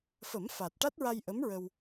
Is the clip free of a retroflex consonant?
no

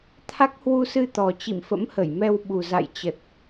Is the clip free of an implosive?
no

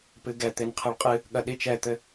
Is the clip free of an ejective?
no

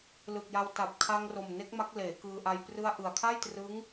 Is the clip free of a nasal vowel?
yes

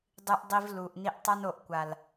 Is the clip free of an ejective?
yes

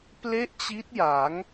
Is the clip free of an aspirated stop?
yes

